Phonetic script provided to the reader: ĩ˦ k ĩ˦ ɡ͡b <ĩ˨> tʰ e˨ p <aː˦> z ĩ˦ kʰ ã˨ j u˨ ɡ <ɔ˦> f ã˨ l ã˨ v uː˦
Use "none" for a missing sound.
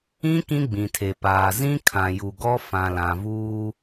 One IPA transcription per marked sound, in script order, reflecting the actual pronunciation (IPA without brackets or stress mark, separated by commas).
ĩ˨, aː˨, ɔ˦